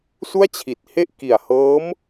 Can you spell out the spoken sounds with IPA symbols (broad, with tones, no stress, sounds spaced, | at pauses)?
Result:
s u˥˩ a̯ t͡ɕʰ i˨˩ t̚ h e˥˩ ʔ k i˨˩ a̯ h ɤː˦˥ m